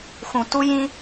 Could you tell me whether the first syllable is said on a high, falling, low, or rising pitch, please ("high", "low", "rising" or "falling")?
low